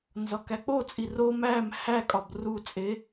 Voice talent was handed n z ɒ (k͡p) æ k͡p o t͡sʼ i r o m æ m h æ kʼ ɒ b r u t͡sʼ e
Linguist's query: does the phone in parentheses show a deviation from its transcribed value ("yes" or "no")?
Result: yes